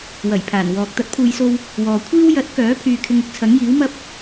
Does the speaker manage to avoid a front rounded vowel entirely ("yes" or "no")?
no